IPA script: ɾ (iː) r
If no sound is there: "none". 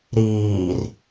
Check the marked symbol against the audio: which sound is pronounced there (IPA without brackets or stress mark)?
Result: iː